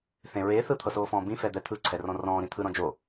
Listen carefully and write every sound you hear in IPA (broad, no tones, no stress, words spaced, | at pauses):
θẽ ɹeː θɯt̪ʰɤsoːfɔ̃ː bĩfɛd̪ɛ t̪ʰɯǀʰɛrɔ̃ rɔ̃ːɾĩ t̪ʰɯɾɔ̃ d͡ʒo